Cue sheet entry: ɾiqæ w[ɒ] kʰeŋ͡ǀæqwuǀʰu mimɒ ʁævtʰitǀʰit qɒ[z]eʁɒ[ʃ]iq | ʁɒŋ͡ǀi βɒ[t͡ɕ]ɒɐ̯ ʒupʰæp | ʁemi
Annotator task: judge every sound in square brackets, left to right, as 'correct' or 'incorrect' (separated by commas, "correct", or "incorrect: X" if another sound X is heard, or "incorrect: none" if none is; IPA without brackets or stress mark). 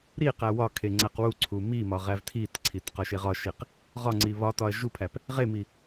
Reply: correct, incorrect: ʃ, correct, incorrect: t